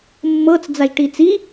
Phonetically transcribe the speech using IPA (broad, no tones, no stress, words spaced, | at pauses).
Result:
mːɤt͡sd͡zaʒʈiːt͡s i